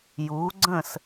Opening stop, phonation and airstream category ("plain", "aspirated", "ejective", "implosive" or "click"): click